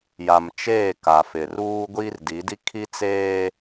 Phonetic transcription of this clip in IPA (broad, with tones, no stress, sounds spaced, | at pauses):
j a˨ m t͡ʃ eː˦˨ k a˨ f ɪ˨ r uː˦ ɡʷ iː˦ r d i˨˦ d i˦ kʰ i˦ t͡s eː˦